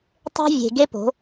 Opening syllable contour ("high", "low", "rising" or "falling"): high